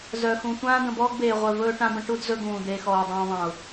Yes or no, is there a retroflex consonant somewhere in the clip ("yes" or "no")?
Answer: yes